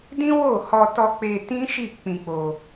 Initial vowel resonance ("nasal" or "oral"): nasal